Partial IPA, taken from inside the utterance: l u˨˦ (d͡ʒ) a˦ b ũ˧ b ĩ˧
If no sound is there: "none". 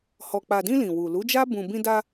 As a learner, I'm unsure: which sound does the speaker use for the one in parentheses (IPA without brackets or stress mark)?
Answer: d͡ʒ